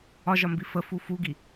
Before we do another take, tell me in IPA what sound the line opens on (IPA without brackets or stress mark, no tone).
ɒ